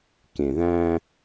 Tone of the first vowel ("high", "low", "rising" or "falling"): low